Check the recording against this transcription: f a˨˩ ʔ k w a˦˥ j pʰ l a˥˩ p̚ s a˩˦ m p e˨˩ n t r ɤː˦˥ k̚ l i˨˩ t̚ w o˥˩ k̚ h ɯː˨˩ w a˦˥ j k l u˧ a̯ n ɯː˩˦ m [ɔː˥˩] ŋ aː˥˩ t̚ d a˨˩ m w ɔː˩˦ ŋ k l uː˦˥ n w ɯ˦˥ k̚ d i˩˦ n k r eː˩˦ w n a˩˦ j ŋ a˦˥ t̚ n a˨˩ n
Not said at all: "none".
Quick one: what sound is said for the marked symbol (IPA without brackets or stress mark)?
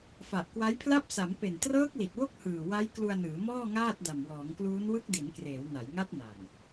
ɔː˥˩